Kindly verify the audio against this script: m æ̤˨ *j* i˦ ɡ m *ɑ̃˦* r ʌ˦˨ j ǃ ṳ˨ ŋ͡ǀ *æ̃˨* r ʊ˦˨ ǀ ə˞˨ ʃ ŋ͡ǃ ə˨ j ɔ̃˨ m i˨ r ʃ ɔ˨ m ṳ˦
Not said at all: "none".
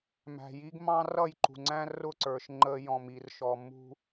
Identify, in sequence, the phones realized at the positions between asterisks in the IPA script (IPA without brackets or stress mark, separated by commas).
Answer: j, ɑ̃˦, æ̃˦